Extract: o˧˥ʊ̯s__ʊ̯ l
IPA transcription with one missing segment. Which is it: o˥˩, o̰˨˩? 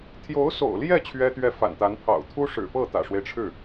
o̰˨˩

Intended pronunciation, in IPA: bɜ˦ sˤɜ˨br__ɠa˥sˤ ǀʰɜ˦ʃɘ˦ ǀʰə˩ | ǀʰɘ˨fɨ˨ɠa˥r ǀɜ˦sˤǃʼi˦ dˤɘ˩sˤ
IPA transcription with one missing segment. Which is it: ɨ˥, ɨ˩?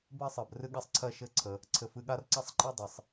ɨ˥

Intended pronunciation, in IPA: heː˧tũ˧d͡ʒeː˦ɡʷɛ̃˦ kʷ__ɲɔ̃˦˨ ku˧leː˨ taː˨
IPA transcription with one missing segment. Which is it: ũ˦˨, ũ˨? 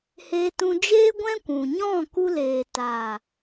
ũ˨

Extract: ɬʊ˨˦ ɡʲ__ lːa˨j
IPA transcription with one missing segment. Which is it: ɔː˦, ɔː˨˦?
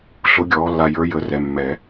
ɔː˨˦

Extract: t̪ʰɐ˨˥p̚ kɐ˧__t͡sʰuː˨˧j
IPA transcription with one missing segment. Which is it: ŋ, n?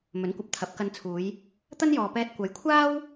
n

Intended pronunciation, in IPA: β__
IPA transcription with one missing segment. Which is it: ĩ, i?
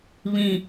ĩ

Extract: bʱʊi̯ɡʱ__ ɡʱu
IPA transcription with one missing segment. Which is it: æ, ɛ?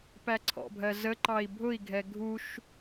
ɛ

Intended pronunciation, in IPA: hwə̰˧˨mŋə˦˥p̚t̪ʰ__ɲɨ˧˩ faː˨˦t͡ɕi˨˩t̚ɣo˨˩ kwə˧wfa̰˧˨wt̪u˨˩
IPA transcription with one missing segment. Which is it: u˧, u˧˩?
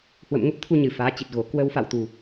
u˧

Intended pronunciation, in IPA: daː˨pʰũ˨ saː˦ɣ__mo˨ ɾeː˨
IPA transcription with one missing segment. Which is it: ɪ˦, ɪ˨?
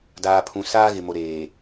ɪ˨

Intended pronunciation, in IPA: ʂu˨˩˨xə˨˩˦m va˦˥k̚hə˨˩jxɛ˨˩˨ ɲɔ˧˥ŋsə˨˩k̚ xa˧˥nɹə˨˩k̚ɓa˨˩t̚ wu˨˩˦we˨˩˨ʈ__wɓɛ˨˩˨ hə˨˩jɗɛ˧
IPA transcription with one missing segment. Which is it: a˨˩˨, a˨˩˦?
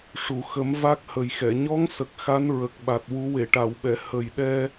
a˨˩˨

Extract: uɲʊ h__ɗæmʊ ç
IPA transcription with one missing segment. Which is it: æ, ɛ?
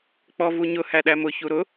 æ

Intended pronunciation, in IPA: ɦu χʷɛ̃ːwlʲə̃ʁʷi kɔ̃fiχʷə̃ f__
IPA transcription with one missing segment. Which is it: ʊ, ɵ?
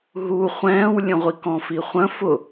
ʊ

